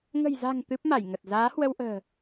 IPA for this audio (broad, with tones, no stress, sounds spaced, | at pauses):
ŋ ə̤˨˩ j z a̤˨˩ ŋ t̪ ɨ˦˥ p̚ m a˧˩ j ŋ ə˨˩ t̚ z aː˨˦ h w ə˧ w ʔ ə̤ː˨˩